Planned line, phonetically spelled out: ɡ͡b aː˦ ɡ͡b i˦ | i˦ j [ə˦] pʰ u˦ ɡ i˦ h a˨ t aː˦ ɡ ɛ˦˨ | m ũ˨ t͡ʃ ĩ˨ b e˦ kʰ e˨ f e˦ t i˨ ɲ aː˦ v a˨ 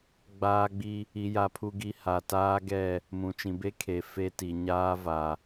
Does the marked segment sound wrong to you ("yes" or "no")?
yes